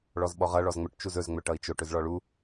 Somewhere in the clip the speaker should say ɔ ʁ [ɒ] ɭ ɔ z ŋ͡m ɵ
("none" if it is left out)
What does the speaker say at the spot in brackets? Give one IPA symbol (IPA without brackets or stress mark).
ʌ